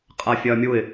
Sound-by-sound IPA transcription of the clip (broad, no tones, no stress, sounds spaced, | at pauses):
qʼ a fʲ ɐː mʲ u ɪ̯